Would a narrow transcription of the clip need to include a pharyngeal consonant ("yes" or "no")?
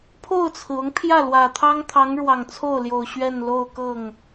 no